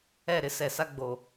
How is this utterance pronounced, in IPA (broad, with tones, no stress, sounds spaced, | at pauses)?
ɛ˦˨ ɾ ɪ˦ s ɛ˨ s a˦ ɡ͡b o˨